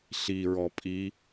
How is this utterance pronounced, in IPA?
ɬiɹɔ pʼi

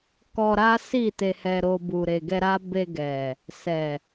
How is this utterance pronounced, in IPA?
kɔ˧ɾa˦si˦˨ te˧hɛ˧ɾo˧ bu˨ɾe˨ɡɛ˧ɾa˦ be˧ɡɛ˨ | sɛ˨

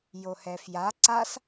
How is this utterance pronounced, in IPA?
johɛfja ǀas

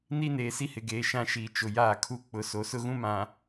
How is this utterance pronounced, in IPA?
ni˦neː˨ si˦hɪ˨ɡeː˨ ʃã˦ʃiː˨ t͡ʃʊ˨ jaː˦˨kʰu˦ k͡pʊ˦ so˨sʊ˦ɣũ˦ mã˨

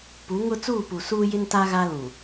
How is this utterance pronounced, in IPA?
pu˨˦ŋʊ˦ t͡suː˦˨pu˨suː˦jɪ˦n ta˦ɣa˦lũ˨

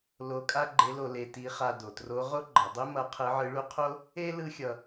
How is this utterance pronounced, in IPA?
lo˧˥kʼa˥ɡ͡ǃe˧˥lo˧ le˧ti˧˥χa˧ do˩tro˧˥ ʁo˥ɡ͡ǃʌ˩˧dˤi˥ mʌ˧˥qʰɯ˧˥ʕɯ˧˥ɭu˥ qʰo˥ | e˥ lɯ˥xʲʌ˧

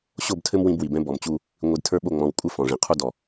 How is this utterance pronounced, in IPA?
ɕo˦˨btʰɘ˦m wĩ˦bwi˨ bɛ̃˦bɔ˨mt͡ɕu˦ | ŋʷi˨dtʰə˞˦ɓo˦˨ ŋ͡mɔ̃˨w kʷʼɘ˦ fɔ̃˨ʐĩ˨ qʰu˦dɔ˨

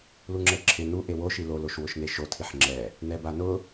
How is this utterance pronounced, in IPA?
luŋ͡ǁɛǁʰɪ nu ʔewo ʃilo loʃwʊʃneʃo tʰiħŋ͡ǁɛ | nɛbanʊ

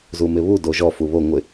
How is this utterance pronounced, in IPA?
zumɪβu doʒɔ fuβo ŋʷɪ

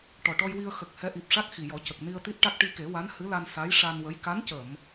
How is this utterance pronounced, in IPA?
ʈɔ˨˩ʈɔ˧jwi˧ə̯ xə˨˩k̚ hɛ˧˥ʔi˨˩p̚ʂa˦˥k̚ xi˨˩jɔ˨˩˦ cə˨˩k̚ ni˧ə̯t̪i˦˥t̚ʈa˦˥k̚ ʈi˧ke˨˩˦wa˧˥n hɨ˧˥la˧n sa˧˥j ʂa˧nwə˧˥j ka˧˥ncə˨˩˨m

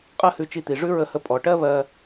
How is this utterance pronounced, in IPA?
qʼɜ˥hʉ˧t͡ʃi˧t̪i˩ ʐʉ˥ ɹə˧hə˧ pʼɔ˩ʈɜ˥ βɜ˧

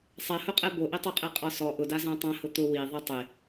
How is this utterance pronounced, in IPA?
sˤɛhʊqʼɛ boʔitˤuqʼe qʼɔsɔ ʔʊda zãtˤãhʊ t̪ʊ wi ðˤitˤe

